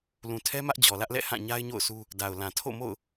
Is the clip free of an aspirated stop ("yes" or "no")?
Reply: no